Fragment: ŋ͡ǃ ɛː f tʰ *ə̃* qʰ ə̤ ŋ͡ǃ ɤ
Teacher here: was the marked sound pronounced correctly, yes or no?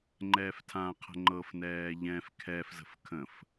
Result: no